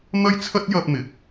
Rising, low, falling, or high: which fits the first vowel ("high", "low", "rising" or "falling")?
high